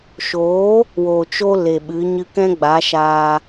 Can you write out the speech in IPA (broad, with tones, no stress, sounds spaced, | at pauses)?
ʃ oː˨˦ | w o˨ t͡ʃ o˧ l e˨ ɓ ɨ˨˦ ɲ ɨ˧ k ɛ̃˦ ɡ͡b a˨˦ ʃ aː˧